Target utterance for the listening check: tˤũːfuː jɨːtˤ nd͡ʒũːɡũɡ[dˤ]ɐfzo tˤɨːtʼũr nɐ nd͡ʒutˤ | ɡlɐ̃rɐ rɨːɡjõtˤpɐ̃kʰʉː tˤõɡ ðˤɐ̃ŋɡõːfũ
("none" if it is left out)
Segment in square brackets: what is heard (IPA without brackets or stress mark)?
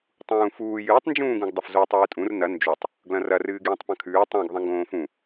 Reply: dˤ